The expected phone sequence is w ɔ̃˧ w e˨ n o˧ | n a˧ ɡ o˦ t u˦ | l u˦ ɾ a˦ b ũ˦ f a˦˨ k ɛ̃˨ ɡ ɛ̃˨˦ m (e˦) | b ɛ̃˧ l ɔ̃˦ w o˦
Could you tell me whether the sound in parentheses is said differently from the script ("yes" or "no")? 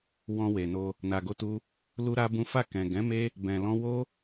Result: no